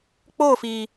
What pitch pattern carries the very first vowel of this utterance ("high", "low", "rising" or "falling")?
falling